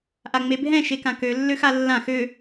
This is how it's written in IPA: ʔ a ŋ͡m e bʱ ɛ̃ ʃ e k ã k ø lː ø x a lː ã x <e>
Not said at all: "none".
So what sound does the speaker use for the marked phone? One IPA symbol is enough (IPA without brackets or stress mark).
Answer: ø